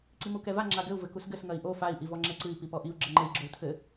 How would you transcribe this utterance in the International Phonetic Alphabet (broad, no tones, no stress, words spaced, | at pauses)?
ǀimukɛva ŋ͡ǁaɡɘu̯ vɘkusɡɘs ŋɐi̯ʔo fai̯ ʔivɔŋ͡ǁɛǀɨi̯ pipɔʔiu̯ ɡ͡ǁɘŋ͡ǃɘi̯ ɡ͡ǁou̯tʰɘ